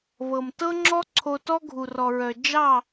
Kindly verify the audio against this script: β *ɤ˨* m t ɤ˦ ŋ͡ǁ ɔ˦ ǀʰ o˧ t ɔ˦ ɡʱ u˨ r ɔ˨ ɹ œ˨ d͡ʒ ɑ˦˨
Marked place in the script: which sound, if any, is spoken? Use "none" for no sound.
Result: ɤ˨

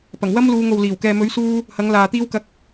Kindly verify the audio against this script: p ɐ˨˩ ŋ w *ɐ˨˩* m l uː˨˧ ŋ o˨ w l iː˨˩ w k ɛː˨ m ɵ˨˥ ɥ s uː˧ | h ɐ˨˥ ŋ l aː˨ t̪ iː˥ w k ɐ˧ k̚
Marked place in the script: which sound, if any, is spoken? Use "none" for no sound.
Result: ɐ˥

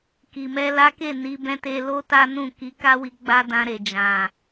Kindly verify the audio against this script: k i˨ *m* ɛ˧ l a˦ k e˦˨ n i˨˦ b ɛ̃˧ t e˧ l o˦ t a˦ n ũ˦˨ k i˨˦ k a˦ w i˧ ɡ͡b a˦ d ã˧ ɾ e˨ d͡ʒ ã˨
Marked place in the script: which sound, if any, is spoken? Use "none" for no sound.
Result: m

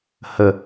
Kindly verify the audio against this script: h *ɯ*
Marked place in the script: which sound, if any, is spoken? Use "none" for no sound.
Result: ə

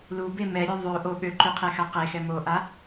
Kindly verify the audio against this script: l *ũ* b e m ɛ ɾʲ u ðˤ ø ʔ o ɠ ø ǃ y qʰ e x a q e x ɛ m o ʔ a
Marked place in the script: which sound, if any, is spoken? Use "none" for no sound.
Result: u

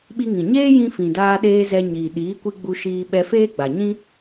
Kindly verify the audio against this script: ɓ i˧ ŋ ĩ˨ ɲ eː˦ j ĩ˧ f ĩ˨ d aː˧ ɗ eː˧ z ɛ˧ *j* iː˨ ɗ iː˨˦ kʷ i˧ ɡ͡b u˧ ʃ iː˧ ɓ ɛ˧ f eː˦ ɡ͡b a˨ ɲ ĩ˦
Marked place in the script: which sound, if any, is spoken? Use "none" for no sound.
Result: ɲ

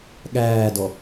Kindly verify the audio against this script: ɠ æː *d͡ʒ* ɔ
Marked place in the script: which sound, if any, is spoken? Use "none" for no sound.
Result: d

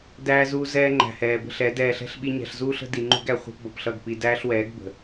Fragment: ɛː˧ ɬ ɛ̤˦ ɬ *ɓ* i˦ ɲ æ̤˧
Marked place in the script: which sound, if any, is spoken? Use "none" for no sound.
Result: ɓ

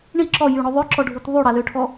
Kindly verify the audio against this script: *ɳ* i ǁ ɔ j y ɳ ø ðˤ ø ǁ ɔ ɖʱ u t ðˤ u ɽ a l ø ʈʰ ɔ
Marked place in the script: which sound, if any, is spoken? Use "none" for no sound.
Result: ɳ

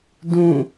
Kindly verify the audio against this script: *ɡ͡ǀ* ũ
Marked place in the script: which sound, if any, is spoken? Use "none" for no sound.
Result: d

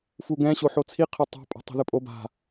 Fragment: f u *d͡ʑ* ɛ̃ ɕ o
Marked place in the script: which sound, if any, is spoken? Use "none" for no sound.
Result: ɡ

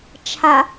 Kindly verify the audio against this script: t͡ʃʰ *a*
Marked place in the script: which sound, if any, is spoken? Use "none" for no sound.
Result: a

